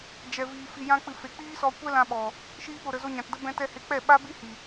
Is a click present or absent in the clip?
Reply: absent